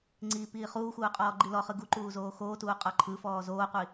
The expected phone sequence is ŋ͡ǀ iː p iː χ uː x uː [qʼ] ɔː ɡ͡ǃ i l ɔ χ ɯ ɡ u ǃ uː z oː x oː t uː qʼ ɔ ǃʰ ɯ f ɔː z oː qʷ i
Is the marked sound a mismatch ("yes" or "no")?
no